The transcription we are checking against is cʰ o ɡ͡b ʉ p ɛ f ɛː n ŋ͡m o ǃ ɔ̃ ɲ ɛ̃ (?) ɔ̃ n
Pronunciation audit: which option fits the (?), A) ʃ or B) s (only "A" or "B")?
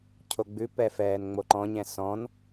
B